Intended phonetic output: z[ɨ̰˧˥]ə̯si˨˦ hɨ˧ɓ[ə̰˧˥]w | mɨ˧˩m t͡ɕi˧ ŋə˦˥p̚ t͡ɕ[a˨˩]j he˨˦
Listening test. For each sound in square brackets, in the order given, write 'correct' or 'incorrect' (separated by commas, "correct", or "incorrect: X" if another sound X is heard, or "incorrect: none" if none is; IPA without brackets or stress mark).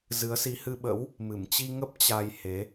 incorrect: ɨ˨˦, correct, incorrect: a˧